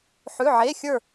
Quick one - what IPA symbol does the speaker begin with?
ħ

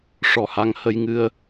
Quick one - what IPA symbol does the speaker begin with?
ʂ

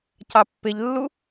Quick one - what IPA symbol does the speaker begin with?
c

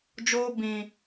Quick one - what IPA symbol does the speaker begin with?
d͡ʒ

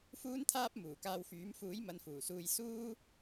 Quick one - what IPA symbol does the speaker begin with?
f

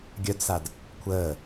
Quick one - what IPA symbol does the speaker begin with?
ɡʲ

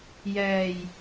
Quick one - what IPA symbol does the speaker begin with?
j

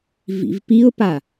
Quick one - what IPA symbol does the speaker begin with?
v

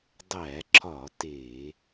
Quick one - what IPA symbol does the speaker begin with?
dˤ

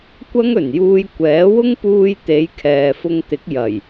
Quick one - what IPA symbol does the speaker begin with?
kʷ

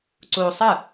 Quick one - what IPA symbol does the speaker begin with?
ǀ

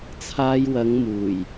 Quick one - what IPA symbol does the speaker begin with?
t͡sʰ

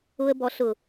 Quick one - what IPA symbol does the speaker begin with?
ʊ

